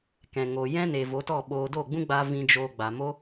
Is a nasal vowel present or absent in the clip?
present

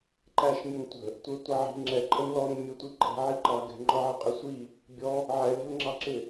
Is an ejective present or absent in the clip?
present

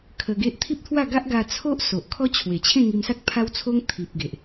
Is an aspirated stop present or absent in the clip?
present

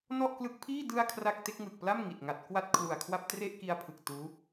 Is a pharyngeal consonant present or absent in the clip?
absent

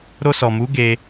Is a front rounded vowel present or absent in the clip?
absent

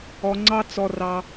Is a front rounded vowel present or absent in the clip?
absent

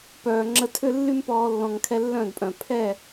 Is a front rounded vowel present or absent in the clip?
present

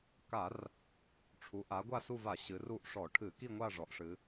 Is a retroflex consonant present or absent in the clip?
present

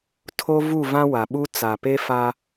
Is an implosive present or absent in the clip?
present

